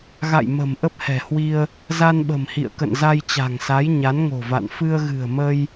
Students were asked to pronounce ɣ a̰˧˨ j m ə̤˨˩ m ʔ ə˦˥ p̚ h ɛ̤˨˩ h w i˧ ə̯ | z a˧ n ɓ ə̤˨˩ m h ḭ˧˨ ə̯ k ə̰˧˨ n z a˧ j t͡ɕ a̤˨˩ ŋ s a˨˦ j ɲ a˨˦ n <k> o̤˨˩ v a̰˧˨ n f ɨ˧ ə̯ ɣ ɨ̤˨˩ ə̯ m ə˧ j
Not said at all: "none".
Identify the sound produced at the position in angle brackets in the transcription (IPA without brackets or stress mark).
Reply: ŋ